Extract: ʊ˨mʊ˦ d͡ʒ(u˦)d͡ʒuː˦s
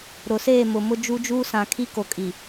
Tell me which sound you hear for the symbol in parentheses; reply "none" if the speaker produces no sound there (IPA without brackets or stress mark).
u˦